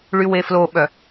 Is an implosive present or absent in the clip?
present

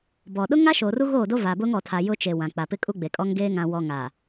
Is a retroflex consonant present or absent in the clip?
absent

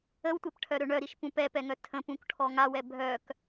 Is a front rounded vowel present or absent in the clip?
present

